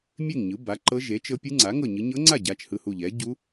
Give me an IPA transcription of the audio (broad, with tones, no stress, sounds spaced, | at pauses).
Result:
mʲ e˥˨ ŋ ɲ ɯ˩˥ b a˩˥ ǃ ɤ˧˥ ʒ e˩˥ t͡ʃ ɤ˧˥ pʲ ɯ˧˥ ŋ͡ǀ a˩˥ ŋ ɤ˥˨ ɲ ɯ˧˥ ɲ ɤ˧˥ ŋ͡ǀ a˥˨ ɟ a˩˧˩ t͡ʃ h ɯ˥˨ h u˥˨ ʎ ɛ˩˥ ɟ u˧˥